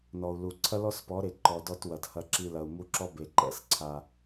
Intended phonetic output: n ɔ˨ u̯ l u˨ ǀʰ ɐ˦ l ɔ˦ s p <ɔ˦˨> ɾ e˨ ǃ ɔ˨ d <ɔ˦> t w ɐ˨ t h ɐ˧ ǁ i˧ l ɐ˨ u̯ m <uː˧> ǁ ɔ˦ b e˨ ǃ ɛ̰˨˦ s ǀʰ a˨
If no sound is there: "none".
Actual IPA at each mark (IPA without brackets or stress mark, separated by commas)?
ɔ˨˦, ɔ˧, u˧